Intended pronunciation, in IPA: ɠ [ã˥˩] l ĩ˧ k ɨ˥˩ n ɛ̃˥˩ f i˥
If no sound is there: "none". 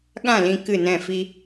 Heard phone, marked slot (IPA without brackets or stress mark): ã˥˩